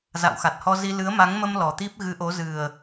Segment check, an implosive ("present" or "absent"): absent